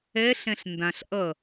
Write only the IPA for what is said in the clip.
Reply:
ɛɬɛ̃ɬ ndãɬ ʔʌ

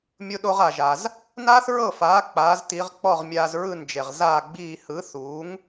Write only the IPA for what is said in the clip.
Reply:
mʲo˧ɗo˧ʁ a˩ʒa˩z | naː˥θɹɤ˥˩faː˩˥ k͡paː˩˥zti˩˥ʁ k͡pɔ˥˩ʁmʲaː˧z ɹɯ˥˩nd͡ʒe˩ʁ zaː˥˩ɡ͡biː˥˩ hɯ˩˥θuː˩˥ŋ

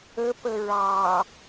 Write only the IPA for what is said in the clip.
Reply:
əpə ɹɑ

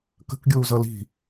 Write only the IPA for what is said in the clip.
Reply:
kə̤kɡʲuːzʌ li̤

